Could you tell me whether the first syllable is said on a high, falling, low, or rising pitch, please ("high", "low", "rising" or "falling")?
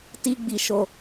high